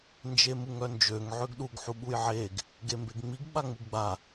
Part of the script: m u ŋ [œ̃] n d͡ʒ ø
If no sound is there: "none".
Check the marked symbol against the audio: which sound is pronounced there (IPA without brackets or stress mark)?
œ